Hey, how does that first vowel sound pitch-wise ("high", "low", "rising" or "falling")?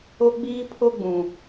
high